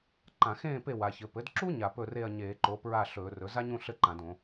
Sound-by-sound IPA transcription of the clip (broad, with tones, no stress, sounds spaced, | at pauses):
ǃ ã˧˩˧ x ẽː˥˨ p e˥˨ w a˩˧ ç ɘ˩˧ p ɘ˩˥ d ǁ u˥ ɲ a˧˩˧ p ɵ˥˨ r e˥˨ ɐ̯ ɲ eː˧˩˧ ǃ o˩˥ p ɹ a˥˨ ɬ ɵː˧˩˧ r ɵ˩˥ z a˥ ɲ ũ˥˨ ɬ ɘ˥˨ ǃ ã˧˩˧ d õ˧˩˧